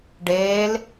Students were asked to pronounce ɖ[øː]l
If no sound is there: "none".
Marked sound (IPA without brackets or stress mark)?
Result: eː